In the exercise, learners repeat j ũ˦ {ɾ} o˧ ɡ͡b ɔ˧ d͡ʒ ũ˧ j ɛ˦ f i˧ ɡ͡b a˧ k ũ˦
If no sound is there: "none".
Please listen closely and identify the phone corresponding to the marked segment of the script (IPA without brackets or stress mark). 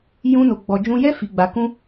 n